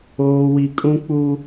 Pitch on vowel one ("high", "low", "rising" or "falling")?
high